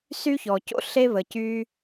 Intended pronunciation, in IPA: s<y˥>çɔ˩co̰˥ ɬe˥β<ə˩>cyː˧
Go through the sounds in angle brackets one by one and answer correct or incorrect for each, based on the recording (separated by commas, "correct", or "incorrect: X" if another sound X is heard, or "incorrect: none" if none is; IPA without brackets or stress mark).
correct, correct